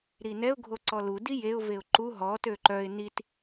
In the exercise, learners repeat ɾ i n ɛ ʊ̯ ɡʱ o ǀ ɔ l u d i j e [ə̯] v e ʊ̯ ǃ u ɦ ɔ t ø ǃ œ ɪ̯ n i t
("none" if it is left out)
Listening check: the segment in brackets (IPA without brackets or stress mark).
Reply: ʊ̯